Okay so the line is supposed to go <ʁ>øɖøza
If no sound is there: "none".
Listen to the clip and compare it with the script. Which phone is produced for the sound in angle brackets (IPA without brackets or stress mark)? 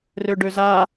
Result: r